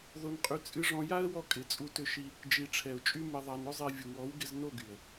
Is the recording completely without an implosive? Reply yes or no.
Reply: yes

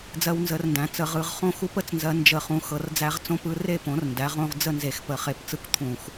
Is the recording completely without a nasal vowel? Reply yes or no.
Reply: no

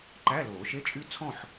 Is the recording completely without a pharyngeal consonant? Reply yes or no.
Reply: no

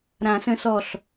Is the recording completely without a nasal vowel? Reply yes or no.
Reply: no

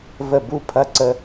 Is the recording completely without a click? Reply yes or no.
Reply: no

